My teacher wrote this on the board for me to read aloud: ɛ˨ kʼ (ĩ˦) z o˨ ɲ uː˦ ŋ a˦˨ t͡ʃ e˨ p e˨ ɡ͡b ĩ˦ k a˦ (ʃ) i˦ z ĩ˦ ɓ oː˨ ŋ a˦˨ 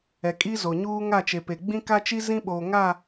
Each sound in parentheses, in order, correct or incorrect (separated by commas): incorrect, incorrect